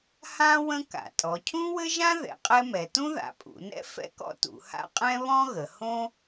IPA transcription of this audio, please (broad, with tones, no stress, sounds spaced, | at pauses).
h ã˥ w ə̃˥ k a̰˩˧ tʼ ɔ˩˧ cʰ ũ˥ w ɘ˥ ʒ ã˥ ð ɛ̰˩˧ qʼ ɛ˥ m ɛ˩˧ t ũ˥ ð a̰˩˧ pʼ ṵ˩˧ n ɛ̰˥ f ɛ̰˥ k ɔ̰˥ t ṵ˩˧ h a̰˥ qʼ ɛ̃˥ β ɔ̃˥ ɣ ə˩˧ h õ˥